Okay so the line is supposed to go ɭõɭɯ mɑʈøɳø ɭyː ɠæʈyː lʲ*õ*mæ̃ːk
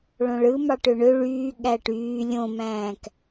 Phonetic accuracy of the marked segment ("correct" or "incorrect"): correct